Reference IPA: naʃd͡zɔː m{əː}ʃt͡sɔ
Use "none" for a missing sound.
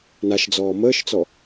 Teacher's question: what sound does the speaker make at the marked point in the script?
əː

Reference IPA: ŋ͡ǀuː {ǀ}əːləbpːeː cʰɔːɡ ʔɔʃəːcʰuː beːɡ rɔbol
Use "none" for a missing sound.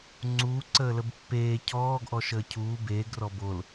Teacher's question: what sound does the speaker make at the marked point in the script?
ǀ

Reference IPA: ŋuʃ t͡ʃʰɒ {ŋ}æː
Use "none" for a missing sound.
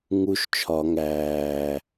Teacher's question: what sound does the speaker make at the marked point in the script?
ŋ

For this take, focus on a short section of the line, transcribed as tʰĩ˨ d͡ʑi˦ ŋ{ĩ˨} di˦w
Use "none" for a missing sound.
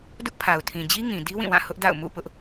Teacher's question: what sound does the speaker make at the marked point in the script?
ĩ˨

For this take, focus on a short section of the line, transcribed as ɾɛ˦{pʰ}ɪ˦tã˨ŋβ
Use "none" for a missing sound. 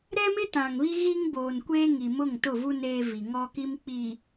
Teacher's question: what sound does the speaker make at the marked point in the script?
m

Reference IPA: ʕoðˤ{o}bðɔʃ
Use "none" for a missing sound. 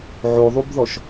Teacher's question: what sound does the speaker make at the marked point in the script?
u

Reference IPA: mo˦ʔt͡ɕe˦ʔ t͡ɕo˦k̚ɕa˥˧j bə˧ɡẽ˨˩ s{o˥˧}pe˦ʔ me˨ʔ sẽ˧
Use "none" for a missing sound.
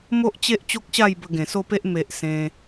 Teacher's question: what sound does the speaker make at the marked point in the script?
o˥˧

